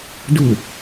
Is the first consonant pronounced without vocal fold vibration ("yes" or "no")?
no